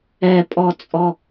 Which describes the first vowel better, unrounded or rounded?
unrounded